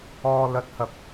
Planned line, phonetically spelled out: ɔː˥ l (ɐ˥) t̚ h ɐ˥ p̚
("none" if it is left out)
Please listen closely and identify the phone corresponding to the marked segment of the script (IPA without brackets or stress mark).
ɐ˥